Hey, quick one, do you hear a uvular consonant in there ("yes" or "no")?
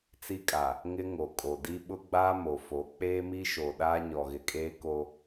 no